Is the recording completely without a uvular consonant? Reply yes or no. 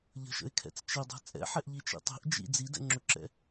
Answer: yes